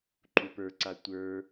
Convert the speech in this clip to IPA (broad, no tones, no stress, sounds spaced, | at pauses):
ǃ u p ə˞ ǀ a tʷ ə˞